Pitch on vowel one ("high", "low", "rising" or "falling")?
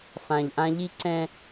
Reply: low